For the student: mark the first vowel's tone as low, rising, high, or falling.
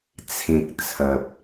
low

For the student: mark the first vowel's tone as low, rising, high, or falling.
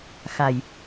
low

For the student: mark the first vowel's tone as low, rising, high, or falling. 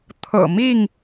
low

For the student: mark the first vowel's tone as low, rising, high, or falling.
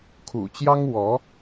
low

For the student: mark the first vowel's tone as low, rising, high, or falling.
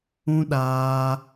high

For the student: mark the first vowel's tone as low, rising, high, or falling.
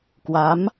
rising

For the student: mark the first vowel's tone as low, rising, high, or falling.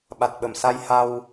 low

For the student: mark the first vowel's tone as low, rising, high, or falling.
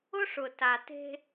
high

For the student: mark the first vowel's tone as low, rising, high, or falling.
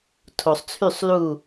low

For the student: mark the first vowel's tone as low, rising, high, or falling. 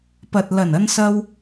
low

